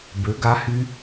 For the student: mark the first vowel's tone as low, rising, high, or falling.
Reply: rising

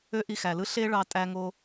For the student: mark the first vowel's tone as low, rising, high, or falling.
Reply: high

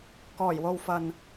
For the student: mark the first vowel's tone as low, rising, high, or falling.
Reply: low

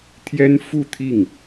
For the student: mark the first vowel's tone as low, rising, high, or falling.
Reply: high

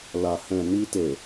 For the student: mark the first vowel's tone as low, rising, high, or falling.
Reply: low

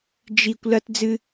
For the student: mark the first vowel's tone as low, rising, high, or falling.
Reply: low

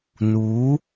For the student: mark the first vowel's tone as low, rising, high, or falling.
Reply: rising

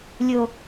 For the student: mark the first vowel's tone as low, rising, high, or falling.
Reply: low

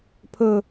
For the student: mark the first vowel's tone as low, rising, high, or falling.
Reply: low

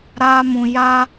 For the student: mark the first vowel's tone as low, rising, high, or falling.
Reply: high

